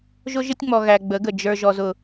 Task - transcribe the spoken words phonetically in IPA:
ʒʊ˦ʒɪ˦tʲŋ͡mɔ˨ ɣæ˨ɡ͡bə˨˦ɡə˨ d͡ʒə˞˨ ʒɔ˨zʊ˨

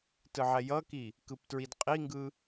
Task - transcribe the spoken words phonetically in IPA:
tɯʕɛjʌki | kɯptɹidqʼiŋɡɯ

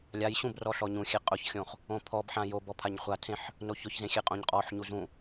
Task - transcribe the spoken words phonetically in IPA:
lʲaj ɕũbrɔ ɬɔɲũxʲe qʼʊçxʲõχ | õpʰɔbħã jobɔ pʰaɲχʷatʰẽħ | noçʊçzẽ xʲeqʼõɲqʼɔħɲu zũ

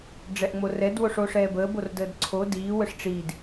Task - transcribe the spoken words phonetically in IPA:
ɖ͡ʐɛʔŋ͡morɛd woʂoʂɛːbəːb ordəːdǀʰo diː wəʂʈ͡ʂiːd

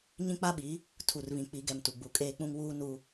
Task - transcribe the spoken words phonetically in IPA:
ɲĩ˦k͡pa˦ɓi˨˦ | tʰu˨rβĩ˨k͡pi˨˦ɡɛ˨m tu˨ɡ͡bu˨kʼeː˦k͡pũ˦ŋ wuː˦ nu˦

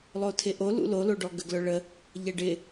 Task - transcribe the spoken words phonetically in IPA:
lˠotʰɪʔo lṵloloɖɔ ɡəɡlœɭə | ʎɛɖɪ

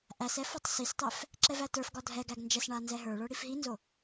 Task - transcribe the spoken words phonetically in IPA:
ʔæsɛ fɒtˤsistˤɛf | ǁɛvætə˞fɡɒ dʱɛɡæɡ nd͡ʒɛsɳa nzɛɦə˞ɭə˞ ɽifɦinzo

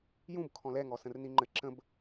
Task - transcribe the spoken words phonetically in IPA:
jũb kʰɔ̃lɛ ŋɔsə̃rniŋ͡ǃɘ ǁə̃b

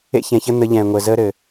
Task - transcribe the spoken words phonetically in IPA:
ḛ˦çɛ̃˨çə˦ n̪ə˨˦ ʎɛ̃ː˨ŋʷəː˨ zəː˦ɾɘ˨

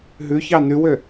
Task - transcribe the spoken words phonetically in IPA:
ɦʉ çɑnʉwø

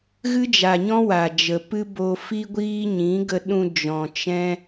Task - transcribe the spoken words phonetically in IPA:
ɣɨ˦d͡ʒa˨ɲɔ̃˦ wa˨d͡ʒə˨pɨ˦ bo˧fi˦ɡʷiː˦ ɲĩ˨˦ɡə˧ɗũ˧ d͡ʒɔ̃˨ t͡ʃɛ̃˦

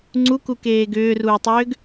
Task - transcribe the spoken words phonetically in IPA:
ŋ͡ǀukukeː ɡʏːruːtˤʏːɡ

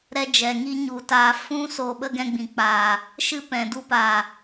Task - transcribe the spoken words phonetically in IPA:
ɾɛ˦d͡ʒɛ˨ŋiː˦ ɲu˨taː˧ fũ˦ soː˧ɓə˦ɡɛ̃˧ɡ͡bĩ˨ k͡paː˨ | ʃɨ˦pɛ̃˨ du˦paː˨

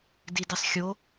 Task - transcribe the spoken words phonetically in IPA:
didisˤxʲo

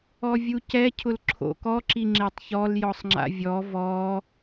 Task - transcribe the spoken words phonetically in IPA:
ɔvʲucɛ cʰʊlǁʰo̰kɔ ǁiŋ͡ǁetˤçɔl jɔsˤŋ͡ǁa̰vʲɔ vɔ

